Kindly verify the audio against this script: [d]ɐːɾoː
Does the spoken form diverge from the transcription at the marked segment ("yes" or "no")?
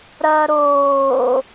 yes